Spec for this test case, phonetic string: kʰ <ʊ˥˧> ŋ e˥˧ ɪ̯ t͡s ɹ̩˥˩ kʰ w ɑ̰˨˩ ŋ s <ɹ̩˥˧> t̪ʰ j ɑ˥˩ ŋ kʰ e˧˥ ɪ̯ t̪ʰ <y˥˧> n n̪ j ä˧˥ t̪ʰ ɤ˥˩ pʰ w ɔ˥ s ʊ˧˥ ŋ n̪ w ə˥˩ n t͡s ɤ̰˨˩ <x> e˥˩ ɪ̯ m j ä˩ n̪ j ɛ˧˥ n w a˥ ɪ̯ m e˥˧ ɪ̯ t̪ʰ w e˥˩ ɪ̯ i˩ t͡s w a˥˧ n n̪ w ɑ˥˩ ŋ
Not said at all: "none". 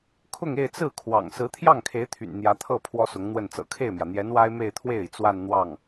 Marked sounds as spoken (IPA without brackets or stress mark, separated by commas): ʊ˥˧, ɹ̩˧˥, y̰˨˩, kʰ